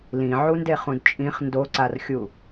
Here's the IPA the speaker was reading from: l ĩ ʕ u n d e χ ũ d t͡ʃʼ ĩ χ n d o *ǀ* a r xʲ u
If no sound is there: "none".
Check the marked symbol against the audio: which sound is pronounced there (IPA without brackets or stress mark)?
ǀ